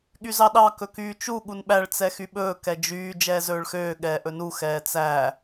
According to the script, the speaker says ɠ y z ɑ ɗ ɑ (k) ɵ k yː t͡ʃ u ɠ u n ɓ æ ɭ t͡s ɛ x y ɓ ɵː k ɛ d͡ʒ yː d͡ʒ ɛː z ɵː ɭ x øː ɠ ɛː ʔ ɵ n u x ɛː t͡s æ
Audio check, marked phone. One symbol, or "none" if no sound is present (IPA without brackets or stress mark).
k